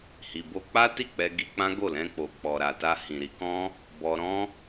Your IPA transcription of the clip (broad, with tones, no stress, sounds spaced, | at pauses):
h i˨ b o˧ k͡p a˦ t i˦˨ k͡p ɛ˧ ɡ i˧ k͡p ã˦ ɡ o˦˨ l ɛ̃˧ k͡p o˨ k͡p ɔ˨ ɾ a˨ t a˧ h ĩ˨ ɾ i˨˦ k ɔ̃˦ | b ɔ˧ ɾ ɔ̃˦